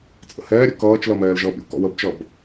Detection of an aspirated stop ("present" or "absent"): absent